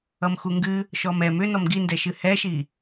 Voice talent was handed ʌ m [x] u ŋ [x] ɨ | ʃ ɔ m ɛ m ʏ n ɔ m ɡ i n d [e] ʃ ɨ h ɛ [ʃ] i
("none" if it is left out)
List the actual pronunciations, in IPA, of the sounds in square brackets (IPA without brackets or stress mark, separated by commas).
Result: x, ɡ, ɛ, ʃ